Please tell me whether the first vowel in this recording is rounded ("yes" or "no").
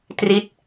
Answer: no